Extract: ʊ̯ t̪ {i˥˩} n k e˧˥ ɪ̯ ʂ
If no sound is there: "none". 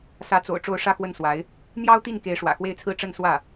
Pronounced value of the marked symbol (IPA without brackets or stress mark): i˥˩